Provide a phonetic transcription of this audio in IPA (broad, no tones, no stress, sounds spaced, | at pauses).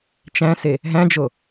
t͡ʃ æ̃ s e | ɦ æ̃ d͡ʒ o